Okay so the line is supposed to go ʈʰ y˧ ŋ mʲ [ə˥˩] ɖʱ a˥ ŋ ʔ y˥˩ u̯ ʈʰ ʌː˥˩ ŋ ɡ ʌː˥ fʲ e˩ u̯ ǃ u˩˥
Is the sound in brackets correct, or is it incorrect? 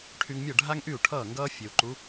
incorrect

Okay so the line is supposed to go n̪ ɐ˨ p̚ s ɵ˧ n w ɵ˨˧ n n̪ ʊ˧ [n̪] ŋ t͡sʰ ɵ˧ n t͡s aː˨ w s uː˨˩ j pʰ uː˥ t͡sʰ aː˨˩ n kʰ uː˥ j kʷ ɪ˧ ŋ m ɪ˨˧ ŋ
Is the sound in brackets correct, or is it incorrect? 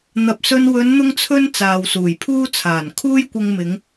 incorrect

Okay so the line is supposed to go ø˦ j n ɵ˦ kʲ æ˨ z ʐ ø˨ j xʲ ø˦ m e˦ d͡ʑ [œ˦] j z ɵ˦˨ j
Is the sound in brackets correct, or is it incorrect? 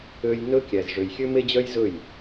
correct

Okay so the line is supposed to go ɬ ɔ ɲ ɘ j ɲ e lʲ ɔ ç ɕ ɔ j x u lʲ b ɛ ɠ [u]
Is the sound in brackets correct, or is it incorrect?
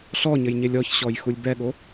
incorrect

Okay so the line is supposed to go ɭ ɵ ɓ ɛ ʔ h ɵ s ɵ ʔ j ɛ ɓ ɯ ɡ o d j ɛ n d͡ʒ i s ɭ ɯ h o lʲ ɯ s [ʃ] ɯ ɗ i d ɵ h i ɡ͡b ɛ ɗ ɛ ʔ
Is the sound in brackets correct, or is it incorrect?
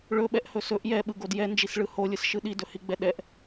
correct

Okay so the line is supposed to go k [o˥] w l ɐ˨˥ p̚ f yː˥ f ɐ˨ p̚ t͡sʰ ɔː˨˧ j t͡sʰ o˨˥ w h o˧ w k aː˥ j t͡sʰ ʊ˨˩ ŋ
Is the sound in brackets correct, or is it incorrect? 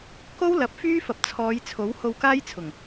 correct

